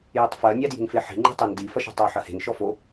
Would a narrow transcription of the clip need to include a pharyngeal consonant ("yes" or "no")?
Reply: yes